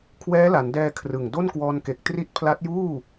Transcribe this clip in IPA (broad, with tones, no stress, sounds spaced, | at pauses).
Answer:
kʰ w ɛː˦˥ l a˩˦ n d ɛː˧ kʰ r ɯ˨˩ ŋ d o˥˩ n k w ɔː˧ n k e˨˩ k̚ t r i˦˥ t̚ pʰ l a˦˥ t̚ j uː˥˩